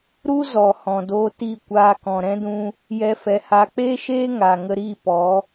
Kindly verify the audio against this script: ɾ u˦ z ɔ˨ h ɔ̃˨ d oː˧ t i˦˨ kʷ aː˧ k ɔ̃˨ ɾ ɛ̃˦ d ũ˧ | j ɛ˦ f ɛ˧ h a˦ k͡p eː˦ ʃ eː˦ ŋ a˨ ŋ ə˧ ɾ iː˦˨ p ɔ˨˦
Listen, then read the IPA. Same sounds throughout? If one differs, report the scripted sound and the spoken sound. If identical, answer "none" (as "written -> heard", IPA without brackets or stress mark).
none